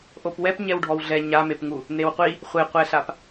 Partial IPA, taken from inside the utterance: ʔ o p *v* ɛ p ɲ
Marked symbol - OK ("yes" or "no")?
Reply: no